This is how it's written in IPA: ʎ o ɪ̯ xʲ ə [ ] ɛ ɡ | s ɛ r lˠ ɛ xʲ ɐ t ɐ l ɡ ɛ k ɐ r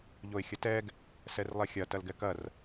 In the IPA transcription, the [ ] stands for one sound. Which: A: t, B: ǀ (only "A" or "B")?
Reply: A